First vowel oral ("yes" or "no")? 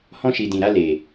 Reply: no